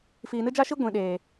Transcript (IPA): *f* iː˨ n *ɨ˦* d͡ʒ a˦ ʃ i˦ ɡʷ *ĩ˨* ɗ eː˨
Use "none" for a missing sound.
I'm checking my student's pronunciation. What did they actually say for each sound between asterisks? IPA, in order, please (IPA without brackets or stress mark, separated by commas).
f, ɨ˦, ĩ˨